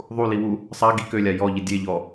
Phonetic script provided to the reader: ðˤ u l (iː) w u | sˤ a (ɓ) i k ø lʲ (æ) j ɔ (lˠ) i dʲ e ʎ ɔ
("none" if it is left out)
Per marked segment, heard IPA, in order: i, ɡ, a, ʎ

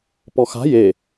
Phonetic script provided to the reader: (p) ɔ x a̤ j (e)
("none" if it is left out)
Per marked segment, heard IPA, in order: p, e

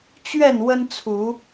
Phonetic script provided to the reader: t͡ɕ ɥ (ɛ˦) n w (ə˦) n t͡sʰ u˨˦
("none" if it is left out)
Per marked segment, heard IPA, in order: ɛ˥˨, ə˦

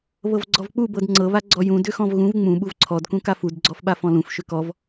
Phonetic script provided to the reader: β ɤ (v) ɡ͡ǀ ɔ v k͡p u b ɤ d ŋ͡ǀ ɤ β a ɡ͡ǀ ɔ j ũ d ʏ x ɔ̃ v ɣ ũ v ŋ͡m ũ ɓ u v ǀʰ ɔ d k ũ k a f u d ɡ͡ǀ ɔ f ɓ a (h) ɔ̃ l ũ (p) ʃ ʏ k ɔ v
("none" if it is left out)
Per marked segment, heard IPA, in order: v, f, f

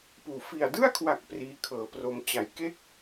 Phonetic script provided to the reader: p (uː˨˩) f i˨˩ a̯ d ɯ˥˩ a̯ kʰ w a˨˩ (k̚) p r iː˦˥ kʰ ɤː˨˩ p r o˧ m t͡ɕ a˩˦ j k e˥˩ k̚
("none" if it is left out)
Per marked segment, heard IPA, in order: uː˨˩, k̚

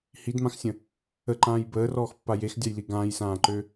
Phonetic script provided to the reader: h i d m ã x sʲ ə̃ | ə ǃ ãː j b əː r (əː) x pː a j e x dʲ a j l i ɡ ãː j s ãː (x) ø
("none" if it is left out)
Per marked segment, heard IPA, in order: ɔː, ǃ

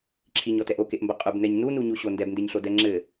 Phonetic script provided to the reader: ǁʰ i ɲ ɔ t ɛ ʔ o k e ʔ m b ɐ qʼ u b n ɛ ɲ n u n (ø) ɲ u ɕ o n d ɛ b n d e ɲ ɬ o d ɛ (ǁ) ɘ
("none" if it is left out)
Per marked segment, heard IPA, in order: u, ŋ͡ǁ

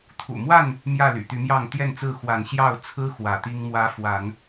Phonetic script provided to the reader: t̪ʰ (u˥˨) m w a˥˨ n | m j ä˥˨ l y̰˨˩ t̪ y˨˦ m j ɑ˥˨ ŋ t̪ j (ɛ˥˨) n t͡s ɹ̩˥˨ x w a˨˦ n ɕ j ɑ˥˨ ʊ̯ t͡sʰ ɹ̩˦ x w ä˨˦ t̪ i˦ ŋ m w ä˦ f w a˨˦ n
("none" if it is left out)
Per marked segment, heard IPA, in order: ṵ˨˩, ɛ˥˨

